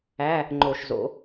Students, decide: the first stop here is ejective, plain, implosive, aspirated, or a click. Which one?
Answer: click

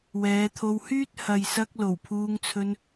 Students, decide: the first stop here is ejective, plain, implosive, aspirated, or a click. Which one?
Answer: aspirated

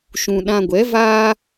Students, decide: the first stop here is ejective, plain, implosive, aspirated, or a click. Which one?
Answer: implosive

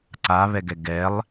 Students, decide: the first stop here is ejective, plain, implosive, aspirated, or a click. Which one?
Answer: click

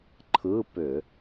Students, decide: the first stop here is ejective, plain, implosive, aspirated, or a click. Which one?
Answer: click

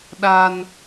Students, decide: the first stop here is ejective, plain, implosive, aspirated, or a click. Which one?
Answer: implosive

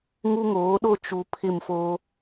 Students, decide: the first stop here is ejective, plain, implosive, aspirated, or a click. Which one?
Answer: implosive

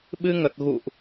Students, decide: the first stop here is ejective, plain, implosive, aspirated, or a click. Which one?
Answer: implosive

